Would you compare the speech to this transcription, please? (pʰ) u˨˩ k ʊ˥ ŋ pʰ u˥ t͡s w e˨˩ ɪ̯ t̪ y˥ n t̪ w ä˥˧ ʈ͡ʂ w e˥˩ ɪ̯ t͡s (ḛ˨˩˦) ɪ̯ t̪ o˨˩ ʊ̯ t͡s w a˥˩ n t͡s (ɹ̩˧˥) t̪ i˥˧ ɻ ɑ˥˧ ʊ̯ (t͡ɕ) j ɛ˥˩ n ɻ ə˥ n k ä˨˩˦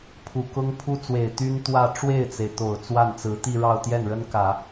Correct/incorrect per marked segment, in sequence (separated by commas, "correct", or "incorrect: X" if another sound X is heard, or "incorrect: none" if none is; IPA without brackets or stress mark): correct, incorrect: e˩, correct, incorrect: t̪